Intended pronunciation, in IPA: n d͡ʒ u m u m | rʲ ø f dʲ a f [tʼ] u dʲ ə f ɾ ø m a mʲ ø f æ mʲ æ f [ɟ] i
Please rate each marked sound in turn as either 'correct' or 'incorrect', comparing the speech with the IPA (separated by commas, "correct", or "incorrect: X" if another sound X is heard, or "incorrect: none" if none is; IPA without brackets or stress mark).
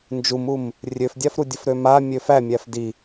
incorrect: ɾ, incorrect: d